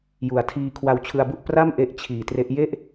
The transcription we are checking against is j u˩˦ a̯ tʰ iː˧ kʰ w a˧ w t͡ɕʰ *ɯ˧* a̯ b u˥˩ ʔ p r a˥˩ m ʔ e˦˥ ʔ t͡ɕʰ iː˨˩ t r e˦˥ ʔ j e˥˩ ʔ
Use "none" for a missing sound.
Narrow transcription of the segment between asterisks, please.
ɯ˧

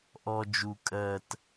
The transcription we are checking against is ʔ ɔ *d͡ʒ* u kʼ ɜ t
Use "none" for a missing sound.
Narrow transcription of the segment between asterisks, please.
d͡ʒ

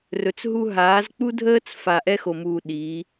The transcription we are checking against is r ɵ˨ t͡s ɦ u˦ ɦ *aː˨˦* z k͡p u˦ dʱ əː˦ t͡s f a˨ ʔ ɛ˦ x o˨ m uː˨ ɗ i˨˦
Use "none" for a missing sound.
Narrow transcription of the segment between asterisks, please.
aː˨˦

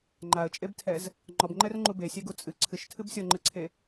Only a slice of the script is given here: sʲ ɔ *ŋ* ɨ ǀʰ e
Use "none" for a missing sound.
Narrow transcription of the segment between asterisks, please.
ŋ͡ǃ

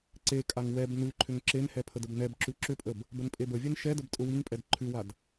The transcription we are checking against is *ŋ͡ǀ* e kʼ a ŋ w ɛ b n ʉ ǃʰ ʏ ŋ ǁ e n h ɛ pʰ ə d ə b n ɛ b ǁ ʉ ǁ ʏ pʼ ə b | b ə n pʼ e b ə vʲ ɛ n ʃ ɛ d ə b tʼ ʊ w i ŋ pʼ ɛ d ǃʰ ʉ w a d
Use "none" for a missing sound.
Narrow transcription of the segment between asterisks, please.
ǀ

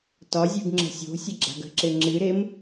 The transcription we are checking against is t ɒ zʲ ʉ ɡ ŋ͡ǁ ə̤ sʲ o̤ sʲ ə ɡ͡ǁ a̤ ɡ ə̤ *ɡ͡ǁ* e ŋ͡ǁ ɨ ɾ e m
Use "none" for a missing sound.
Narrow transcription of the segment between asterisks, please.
ǁ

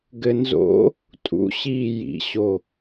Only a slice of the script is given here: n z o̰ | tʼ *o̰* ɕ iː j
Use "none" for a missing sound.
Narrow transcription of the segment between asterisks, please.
ṵ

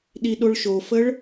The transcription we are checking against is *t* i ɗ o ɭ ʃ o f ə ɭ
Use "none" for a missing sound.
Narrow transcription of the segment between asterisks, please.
ɗ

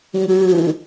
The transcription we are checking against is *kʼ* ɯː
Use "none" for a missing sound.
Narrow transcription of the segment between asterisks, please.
ŋ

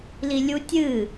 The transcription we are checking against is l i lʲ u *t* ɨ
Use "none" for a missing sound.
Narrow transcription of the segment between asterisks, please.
tʲ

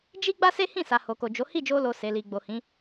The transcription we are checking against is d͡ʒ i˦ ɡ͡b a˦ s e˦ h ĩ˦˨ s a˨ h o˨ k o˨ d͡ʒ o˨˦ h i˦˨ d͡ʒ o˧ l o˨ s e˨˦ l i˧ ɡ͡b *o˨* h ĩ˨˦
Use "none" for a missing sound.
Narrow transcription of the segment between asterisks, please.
o˨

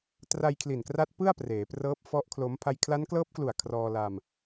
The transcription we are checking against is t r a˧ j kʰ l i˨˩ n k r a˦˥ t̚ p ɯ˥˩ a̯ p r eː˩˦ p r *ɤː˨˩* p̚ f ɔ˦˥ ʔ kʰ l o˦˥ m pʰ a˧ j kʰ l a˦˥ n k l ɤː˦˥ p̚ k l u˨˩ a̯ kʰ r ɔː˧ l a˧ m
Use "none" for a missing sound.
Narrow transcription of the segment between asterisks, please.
ɤː˦˥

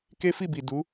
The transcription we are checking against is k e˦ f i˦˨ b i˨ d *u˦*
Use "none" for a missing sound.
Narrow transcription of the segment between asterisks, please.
u˨˦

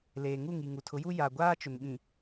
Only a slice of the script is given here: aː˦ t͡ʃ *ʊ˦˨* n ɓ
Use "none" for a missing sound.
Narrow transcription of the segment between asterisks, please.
ʊ˨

